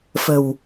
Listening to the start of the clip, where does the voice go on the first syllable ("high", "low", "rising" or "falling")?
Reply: low